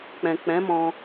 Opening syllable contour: low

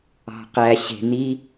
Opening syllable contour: low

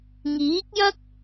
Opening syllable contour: rising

